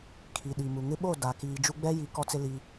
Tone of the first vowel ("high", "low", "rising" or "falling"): low